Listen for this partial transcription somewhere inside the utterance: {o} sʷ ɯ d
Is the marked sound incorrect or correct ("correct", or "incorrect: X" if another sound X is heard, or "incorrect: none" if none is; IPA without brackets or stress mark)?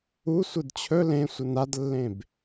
incorrect: u